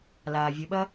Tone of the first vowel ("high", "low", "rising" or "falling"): low